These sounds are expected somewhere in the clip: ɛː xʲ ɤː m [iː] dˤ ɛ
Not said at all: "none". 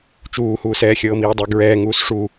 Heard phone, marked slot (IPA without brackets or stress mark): iː